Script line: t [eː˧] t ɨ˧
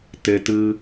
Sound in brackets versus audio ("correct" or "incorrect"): incorrect